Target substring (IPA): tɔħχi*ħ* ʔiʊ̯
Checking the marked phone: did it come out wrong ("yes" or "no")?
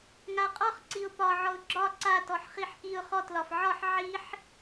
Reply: no